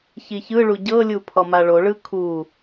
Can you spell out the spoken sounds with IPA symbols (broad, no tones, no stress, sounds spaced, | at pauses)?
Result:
ç i ç ɯ ɭ u ɟ ɤ lʲ u pʰ ɔ m a ɭ o ɭ ɯ kʰ u